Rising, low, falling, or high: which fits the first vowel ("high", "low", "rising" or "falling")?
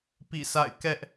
falling